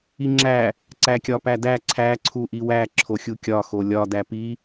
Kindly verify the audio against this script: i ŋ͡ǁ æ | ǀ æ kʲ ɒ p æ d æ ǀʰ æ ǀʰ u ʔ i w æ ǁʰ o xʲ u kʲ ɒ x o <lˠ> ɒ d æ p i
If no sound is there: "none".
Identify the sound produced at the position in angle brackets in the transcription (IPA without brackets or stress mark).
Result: lʲ